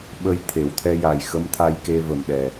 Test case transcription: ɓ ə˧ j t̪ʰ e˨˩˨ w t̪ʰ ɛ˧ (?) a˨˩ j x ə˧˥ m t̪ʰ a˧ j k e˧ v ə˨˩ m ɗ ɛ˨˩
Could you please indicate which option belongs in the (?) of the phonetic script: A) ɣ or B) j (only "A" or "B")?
B